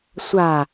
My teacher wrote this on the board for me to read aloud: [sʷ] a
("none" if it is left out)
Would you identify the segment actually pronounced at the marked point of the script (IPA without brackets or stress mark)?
sʷ